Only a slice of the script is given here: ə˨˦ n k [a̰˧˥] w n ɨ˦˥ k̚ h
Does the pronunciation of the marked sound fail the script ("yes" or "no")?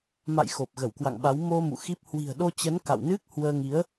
yes